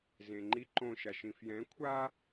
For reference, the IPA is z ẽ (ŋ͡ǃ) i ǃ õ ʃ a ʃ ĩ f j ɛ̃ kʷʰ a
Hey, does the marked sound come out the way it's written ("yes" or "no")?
yes